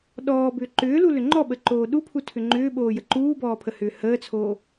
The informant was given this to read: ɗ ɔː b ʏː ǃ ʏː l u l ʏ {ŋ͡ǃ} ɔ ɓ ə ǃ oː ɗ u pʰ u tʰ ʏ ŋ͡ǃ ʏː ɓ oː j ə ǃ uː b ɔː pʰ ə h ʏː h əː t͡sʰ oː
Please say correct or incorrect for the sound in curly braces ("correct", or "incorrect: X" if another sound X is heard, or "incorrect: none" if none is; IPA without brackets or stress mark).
correct